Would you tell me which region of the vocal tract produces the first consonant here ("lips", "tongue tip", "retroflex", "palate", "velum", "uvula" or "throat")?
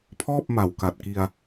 lips